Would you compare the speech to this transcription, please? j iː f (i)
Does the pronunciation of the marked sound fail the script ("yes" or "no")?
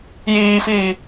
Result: yes